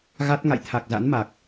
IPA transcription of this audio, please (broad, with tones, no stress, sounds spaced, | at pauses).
ɣ a˦˥ t̚ ŋ a̰˧˨ j t̪ʰ a˨˩ k̚ z a̰˧˥ n m a˨˩ k̚